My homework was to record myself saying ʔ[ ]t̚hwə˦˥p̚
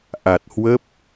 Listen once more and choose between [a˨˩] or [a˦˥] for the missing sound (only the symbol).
a˨˩